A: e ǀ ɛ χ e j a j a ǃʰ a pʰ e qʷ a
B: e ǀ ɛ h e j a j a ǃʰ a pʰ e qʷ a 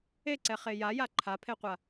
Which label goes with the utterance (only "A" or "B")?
A